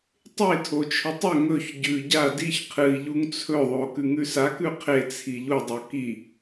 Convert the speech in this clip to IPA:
tˤ e tʰ o t͡ʃʰ ɵ tˤ ɵ ŋ ɵ ç ɟ ʉ ɟ a d i ç qʰ ɨ i̯ ʎ u ŋ t͡sʰ ɵ ðˤ o k ʉ ŋ ʉ s a k ʉ qʰ e t͡sʰ i ʎ u dˤ o k i

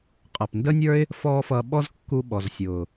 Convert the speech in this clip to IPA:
qʼ ʌː˨ p n d ə˦ nʲ ə˞˦ ɪ̯ | f ɔː˦ f ʌː˧ ɓ ɔ˦ z kː u˧ ɓ ɔ˨ z sʲ ʊː˨

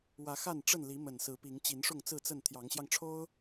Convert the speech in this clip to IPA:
w ä˨˦ x a˥˨ n ʈ͡ʂ ə˥˨ n l i˨˦ m ə˨˩ n s ɹ̩˨˦ p i˨˦ ŋ t͡ɕ i˨˦ n ʂ ʊ˥˨ ŋ t͡s ɹ̩˥˨ t͡s ə˥˨ n t̪ʰ j ɑ˨˦ ŋ ɕ j ɑ˧ ŋ ʈ͡ʂʰ o˦ ʊ̯

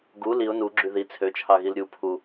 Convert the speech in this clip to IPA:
ɡ u l i ʊ̯ n u ɡ͡ǁ y ð i t͡sʰ ø t͡ʃʰ ɑ ɣ i l ɾʲ u pʰ u

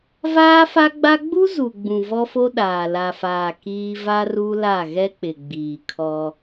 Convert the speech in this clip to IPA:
v aː˦ f a˦ ɡ͡b a˦ ɡ͡b u˦ z u˨ ɡ͡b ũ˨ v ɔ˦ f o˦ ɗ aː˨ l a˨ f aː˨ k iː˦ v a˦ r u˦ l a˦˨ ɣ ɛ˦ k͡p ɪ˨ ɡ͡b iː˨ kʰ ɔ˦

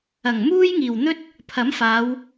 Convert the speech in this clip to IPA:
ɐ˨˩ ŋ m uː˥ j ŋ iː˨˩ w n̪ ɵ˥ t̚ | pʰ ɐ˨˥ m f aː˨˧ w

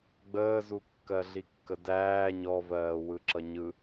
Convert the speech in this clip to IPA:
ɡ͡b əː z u kː ɜ ɮ i kː ə d æː ɲ ɔ v ɜː w ɯ ǁ ʌ ɲ ɯ

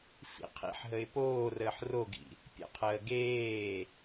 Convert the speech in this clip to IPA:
f ḭ qʰ ḭ ħ ɦ ə ɪ̯ p oː r əː ħ r o ɡ ḭ | pʲ ə̰ qʰ əː ɡ eː

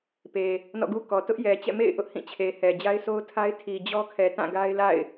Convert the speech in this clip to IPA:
p e˨ | n ɔ̰˦˨ ɡ u˦ k ɔ˨ t ʊ˦ ʔ j ɛ˨ t͡ɕ ɛ̰˦˨ m ḛ˦˨ ɪ̯ ʔ ʊ˦ ʔ h ĩ˦˨ t͡ɕʰ e˨ h ɛ˨ d͡ʑ a˦ ɪ̯ sʰ o˦ ʊ̯ tʰ a˦ ɪ̯ tʰ i˨ d͡ʑ ɔ˦ kʰ ɛ˨ t ã˦˨ ɡ a˦ ɪ̯ l a̰˦˨ ɪ̯

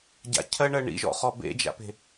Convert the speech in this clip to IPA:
ɟ a̰ cʰ ɜ ɳ ɜ ɳ ḭ ʒ ɔ̰ χ ɔ b ḛ d͡ʒ a̰ p e̤

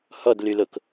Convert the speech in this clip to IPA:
h ɔ d l y l o k

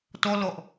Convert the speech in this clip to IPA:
t ɔ l ɔ ʔ

